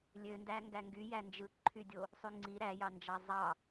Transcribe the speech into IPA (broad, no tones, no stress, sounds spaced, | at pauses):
lʲ ø n d æ ŋ ɡ æ ŋ ɡ y j æ n d͡ʒ ɯ ǃʰ y dʲ o | sˤ y ŋ͡ǀ i ɾ æ j ɑ n d͡ʒ ɑ zˤ ɑ